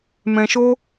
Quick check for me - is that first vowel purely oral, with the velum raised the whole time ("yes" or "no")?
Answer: no